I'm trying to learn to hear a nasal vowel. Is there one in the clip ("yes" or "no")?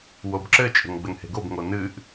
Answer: no